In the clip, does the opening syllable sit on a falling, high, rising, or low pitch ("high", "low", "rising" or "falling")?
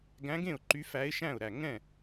rising